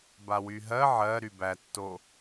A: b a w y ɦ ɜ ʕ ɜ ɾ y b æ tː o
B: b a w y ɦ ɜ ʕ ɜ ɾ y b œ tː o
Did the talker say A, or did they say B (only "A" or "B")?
A